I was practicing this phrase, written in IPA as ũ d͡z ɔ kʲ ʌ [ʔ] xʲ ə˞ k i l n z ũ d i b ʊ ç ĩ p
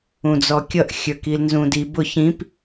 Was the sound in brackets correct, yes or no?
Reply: yes